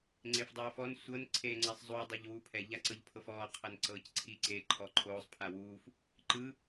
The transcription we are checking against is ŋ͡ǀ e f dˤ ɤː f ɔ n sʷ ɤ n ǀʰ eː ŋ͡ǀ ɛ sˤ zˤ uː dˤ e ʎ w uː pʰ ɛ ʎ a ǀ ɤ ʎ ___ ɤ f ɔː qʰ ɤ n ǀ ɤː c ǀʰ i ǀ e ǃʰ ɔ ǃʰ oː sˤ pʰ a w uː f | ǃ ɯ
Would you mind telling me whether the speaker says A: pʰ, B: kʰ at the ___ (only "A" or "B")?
A